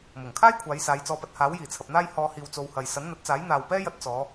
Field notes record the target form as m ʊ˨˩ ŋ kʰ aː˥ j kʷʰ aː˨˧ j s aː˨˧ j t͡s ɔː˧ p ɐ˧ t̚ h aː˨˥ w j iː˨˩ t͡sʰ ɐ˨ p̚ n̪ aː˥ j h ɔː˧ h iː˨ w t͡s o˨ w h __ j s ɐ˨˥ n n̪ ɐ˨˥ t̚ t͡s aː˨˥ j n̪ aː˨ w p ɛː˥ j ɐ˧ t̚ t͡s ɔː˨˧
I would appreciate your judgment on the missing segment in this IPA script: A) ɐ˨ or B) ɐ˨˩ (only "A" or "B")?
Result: A